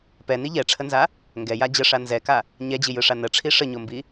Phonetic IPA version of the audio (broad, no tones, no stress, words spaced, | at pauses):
pɛni ʎɛʈ͡ʂʰənza | ŋɡɛja d͡ʑəʂa nzɛka | ɲɛd͡ʑijɯʂa nəʈ͡ʂʰi ʂəɲombi